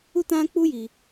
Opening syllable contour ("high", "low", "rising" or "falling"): high